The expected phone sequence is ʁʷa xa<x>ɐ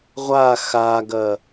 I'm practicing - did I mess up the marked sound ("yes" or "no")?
yes